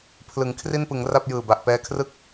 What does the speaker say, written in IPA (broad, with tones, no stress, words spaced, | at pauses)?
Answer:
pʰlɯ˩˦ŋkʰri˥˩npɯ˩˦ŋ ra˥˩p̚jɯː˨˩ba˨˩ʔ pɛː˧kʰrɯ˥˩k̚